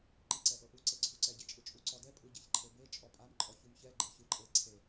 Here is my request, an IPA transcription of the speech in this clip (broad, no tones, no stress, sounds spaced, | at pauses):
ǃ i ǀ ɛ ʔ ɤ ʔ u ǀ e ǀʰ u ǀ ɛ ɟ e t͡ʃʼ ɯ t͡ʃʼ u ǀ ɔ d ɛ pʼ ɯ ɟ e ç ǃʰ e b e t͡ʃʼ ɔ pʼ a m ǃʼ ɔ ç u m ç ɛ ɡ͡ǃ ɛ ç ɯ ǃʼ e ǀʰ e